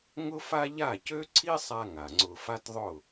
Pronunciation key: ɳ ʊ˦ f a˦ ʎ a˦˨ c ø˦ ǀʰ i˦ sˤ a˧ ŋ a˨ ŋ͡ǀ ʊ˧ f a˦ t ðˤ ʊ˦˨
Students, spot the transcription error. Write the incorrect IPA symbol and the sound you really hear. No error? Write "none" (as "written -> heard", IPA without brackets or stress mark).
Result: ɳ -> ŋ